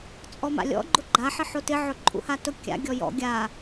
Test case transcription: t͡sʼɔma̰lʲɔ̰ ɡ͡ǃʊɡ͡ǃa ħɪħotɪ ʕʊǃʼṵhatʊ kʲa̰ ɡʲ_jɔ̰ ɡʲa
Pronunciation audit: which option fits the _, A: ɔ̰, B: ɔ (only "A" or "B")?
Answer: B